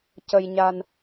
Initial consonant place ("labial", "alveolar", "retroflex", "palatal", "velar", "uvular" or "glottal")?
palatal